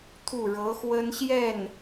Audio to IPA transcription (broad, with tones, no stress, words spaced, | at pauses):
t̪ʰu˥˩ɻɤ˧˥xwə˥n ɕjɛ˥˩n